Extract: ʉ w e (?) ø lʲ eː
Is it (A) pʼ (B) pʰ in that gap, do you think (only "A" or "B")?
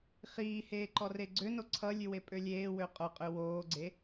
A